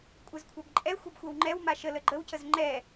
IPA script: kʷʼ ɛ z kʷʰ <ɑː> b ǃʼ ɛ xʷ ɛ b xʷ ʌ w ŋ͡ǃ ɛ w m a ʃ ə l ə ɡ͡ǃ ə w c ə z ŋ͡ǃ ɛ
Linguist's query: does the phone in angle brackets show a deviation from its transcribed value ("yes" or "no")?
yes